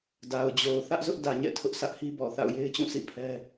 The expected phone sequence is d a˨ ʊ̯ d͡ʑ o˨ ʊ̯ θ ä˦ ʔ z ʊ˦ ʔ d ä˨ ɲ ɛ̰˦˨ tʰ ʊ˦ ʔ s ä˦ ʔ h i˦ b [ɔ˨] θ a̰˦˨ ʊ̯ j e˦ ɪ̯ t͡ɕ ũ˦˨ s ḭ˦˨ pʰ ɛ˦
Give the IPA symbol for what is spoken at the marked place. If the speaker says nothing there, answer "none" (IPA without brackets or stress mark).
ɔ˨